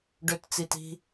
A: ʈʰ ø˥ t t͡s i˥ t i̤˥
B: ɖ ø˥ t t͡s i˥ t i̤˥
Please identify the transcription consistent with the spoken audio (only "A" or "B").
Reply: B